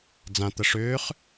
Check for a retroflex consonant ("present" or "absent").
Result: present